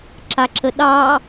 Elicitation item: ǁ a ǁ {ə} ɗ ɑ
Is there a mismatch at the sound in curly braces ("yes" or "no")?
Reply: no